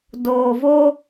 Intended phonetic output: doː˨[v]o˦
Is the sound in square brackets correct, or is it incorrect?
correct